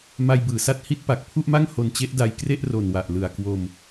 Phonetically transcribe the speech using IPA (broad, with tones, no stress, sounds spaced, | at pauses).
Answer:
m a˧ j b ɯː˩˦ s a˦˥ t̚ h i˦˥ t̚ p a˨˩ k̚ pʰ u˥˩ ʔ m a˥˩ ŋ h o˧ n t͡ɕ e˦˥ ʔ d a˧ j k r e˥˩ ʔ r o˨˩ n w a˨˩ ʔ l ɯ˨˩ a̯ k w o˧ m